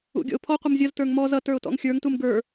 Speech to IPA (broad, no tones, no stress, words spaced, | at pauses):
ṵɡʲɔ̰ʊ̯pʰɔ qʷʌmzʲʌz tə˞ŋmɔz ʌ tə˞ʊ̯tɔ̰ŋxʲə˞ŋ tumɡə˞